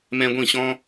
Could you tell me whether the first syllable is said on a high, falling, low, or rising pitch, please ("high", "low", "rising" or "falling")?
high